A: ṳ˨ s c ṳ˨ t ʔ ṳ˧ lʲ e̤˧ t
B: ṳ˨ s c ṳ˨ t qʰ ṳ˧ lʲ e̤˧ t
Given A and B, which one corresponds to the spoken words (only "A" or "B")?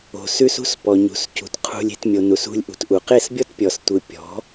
B